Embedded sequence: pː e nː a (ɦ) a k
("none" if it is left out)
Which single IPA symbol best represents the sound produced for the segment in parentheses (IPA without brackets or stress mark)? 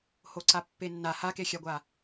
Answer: h